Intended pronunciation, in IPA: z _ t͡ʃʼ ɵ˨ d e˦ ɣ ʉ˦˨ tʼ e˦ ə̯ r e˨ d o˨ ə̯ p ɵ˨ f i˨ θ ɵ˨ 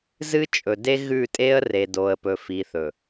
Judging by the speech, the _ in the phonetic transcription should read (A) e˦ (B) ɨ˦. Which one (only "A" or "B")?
B